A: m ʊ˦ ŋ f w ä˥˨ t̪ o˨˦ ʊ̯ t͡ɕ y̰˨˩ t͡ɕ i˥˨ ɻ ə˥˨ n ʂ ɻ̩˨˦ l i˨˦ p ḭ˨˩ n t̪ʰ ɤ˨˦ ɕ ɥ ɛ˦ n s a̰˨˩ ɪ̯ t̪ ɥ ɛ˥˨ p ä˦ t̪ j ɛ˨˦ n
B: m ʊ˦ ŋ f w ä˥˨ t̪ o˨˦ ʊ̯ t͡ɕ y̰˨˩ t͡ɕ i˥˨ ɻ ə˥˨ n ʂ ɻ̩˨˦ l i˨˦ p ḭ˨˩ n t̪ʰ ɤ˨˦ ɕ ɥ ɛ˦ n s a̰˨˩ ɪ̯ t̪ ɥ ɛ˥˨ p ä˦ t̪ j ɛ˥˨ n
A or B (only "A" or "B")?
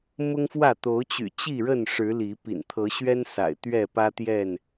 B